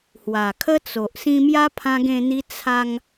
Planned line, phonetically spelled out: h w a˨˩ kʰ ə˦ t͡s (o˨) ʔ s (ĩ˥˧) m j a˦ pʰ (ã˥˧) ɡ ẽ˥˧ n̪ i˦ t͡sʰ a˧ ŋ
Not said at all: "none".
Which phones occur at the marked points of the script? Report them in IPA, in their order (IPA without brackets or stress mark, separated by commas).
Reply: o˨, ĩ˧, ã˦